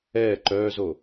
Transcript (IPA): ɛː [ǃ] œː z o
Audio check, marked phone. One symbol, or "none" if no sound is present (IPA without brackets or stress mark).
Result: ǃ